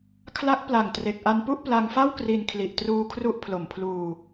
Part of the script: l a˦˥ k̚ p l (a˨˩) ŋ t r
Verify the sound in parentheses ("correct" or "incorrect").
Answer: correct